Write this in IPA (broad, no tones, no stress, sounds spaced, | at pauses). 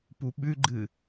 p u ɓ ʉ ɡ͡ǃ ɨ